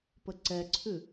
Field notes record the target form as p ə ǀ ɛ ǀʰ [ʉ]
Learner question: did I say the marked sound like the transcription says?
yes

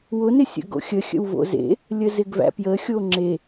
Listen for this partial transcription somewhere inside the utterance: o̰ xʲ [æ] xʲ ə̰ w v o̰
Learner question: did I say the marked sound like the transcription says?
no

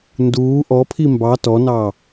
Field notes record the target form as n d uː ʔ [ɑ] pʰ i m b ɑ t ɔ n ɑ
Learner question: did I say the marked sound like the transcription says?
no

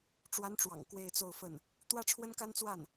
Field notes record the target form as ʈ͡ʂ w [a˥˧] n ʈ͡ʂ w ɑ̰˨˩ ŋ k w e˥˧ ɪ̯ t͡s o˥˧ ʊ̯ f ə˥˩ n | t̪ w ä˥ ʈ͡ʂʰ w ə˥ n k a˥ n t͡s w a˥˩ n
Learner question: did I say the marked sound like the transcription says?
no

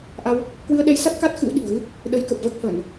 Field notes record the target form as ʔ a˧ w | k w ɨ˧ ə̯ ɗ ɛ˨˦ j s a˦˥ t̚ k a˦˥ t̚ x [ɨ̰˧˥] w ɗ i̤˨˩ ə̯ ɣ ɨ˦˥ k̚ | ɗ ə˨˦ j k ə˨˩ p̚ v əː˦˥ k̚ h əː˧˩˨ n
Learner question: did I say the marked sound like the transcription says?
yes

